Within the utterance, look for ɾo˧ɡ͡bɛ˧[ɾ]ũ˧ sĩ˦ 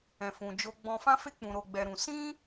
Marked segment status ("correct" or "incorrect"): correct